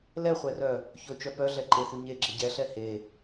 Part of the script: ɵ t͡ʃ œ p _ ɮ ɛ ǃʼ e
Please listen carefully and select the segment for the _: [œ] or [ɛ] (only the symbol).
œ